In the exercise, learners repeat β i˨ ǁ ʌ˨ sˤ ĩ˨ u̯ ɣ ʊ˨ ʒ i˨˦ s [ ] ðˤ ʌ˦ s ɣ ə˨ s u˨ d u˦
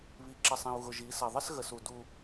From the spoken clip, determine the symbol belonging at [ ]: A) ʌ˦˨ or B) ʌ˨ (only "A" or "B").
B